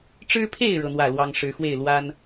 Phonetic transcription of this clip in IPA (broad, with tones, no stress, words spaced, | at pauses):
ʈ͡ʂɻ̩˦pʰe˥˨ɪ̯ ɻɤ˦n̪wä˥˨lwɑ˦ŋ ʂɻ̩˨˦xwe˥˨ɪ̯ lwa˦n